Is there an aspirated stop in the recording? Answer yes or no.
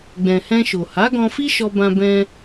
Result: no